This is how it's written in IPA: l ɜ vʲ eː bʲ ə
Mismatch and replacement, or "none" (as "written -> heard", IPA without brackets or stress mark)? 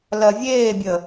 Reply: none